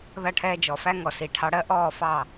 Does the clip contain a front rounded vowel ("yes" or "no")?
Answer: no